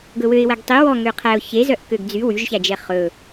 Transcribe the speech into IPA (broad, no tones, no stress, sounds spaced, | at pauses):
ɡ ɵ w ø ɪ̯ w æ ɡ tˤ i w ɔ ŋ ø qʰ æ ʊ̯ ç e z œ ʔ k ø ɡ d͡z y w y ʒ ç æ d͡ʒ ɛ χ ɵ